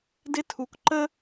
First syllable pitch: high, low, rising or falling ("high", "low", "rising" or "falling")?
high